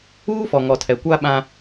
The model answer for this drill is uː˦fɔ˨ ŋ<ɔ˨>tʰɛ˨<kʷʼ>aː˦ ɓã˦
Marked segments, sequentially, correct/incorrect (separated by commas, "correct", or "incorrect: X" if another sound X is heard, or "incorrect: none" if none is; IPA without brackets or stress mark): correct, incorrect: kʷ